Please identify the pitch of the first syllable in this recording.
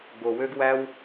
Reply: low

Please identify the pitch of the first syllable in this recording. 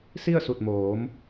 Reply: falling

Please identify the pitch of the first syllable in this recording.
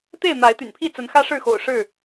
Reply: falling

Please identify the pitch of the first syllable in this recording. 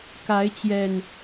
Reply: rising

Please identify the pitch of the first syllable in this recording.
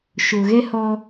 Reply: low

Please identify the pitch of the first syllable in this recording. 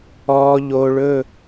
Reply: low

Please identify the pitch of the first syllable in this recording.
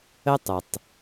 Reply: high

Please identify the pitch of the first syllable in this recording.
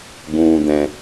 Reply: low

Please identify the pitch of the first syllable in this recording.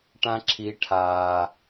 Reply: high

